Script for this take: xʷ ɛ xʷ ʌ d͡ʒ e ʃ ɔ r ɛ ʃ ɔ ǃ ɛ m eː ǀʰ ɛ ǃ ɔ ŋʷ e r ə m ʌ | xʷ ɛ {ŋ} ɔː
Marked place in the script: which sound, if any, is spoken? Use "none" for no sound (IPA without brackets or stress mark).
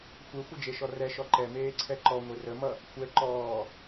ǃ